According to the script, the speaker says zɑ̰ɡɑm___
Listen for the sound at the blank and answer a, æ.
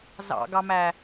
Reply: æ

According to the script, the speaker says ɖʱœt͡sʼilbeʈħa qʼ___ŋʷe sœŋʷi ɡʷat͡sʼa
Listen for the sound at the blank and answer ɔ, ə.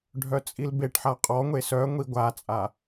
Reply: ɔ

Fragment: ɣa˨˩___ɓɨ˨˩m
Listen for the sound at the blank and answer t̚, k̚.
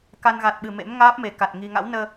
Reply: t̚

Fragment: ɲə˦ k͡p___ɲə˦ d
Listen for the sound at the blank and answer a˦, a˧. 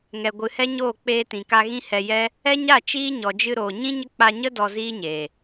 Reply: a˧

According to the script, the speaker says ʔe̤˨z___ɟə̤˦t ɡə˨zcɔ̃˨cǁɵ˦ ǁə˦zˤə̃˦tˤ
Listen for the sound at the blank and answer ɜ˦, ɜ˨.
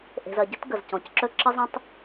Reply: ɜ˨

